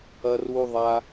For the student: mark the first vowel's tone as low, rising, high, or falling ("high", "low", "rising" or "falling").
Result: high